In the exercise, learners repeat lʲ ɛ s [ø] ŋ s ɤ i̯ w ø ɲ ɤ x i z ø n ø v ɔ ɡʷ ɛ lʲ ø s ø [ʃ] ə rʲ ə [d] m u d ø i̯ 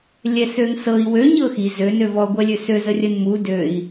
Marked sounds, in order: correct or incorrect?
correct, incorrect: z, incorrect: n

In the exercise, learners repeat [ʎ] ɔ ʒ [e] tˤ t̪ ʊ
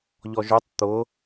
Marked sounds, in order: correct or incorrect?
correct, incorrect: ø

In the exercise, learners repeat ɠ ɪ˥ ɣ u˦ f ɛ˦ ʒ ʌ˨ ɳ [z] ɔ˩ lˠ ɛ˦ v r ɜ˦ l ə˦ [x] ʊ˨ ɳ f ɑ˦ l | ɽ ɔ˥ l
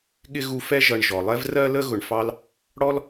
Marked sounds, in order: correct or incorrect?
incorrect: ʒ, incorrect: ɣ

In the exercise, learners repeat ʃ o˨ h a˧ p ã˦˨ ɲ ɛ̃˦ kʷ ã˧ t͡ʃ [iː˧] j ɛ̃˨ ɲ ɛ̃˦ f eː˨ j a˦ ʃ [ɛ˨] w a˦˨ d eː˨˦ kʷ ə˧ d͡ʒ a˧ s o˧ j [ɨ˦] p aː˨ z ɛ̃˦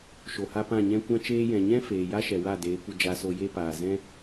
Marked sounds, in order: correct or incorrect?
incorrect: eː˧, correct, incorrect: e˦

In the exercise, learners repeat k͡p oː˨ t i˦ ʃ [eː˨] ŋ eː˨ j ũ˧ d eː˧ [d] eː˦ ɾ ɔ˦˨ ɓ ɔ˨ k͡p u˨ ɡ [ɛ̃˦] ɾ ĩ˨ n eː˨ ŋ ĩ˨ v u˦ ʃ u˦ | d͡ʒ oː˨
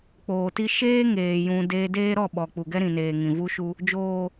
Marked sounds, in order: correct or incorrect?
incorrect: eː˦, correct, incorrect: ɛ˦

